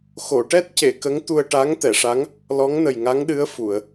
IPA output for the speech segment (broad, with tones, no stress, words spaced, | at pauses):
xo˨˩˨ʈɛ˦˥t̚ce˨˩˨ kə˧˥ŋt̪u˧ə̯ ʈa˧˥ŋt̪ɛ˨˩˨ʂa˧˥ŋ | lɔ˧˥ŋnə˨˩jŋa˧˥ŋɗɨ˧˥ə̯ fu˨˩˨ə̯